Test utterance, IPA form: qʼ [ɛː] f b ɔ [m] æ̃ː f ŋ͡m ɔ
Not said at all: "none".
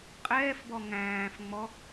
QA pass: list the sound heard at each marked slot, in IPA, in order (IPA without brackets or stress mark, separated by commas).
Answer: ɛː, ŋ